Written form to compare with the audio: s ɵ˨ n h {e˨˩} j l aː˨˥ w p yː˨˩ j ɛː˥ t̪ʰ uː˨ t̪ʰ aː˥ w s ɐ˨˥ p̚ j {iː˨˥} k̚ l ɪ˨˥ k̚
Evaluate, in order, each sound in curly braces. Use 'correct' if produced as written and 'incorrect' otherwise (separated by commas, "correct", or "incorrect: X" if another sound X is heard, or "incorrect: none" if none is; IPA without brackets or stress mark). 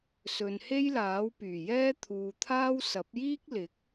incorrect: e˥, incorrect: iː˥